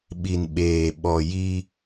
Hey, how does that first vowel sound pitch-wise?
low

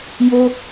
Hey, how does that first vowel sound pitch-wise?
high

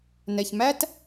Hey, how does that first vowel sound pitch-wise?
low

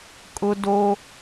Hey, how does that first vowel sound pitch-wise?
high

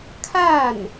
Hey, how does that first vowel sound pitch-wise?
falling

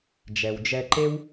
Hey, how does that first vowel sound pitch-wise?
low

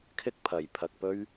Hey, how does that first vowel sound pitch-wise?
high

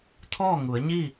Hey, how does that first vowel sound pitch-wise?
falling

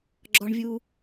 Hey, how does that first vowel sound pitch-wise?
high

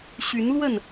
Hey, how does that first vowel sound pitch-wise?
rising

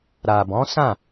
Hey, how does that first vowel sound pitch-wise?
low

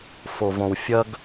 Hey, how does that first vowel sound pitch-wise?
low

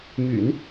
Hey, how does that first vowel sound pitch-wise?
low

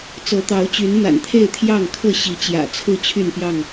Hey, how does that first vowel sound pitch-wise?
rising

